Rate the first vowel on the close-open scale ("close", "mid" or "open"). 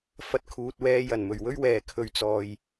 open